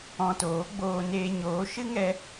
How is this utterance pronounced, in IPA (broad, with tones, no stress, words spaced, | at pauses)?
ɔ̃˧toː˨˦ɡ͡boː˧ neː˧ɲoː˨˦ ʃɨ˦ŋɛ˧